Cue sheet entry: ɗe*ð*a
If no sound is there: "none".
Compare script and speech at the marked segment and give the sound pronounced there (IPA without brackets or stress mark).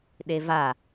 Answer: v